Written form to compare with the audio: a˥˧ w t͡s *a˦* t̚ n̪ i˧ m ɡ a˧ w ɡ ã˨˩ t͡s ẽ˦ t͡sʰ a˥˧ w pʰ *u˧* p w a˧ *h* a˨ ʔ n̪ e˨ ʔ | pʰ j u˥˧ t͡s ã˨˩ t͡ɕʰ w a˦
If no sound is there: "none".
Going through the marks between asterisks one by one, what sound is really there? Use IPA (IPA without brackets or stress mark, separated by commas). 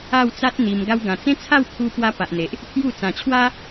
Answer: a˦, u˧, p